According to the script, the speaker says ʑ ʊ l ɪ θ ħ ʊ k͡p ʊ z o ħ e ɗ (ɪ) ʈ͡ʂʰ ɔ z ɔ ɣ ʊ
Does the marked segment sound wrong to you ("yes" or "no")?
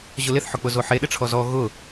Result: no